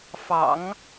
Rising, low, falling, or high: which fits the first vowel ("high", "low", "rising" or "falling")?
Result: low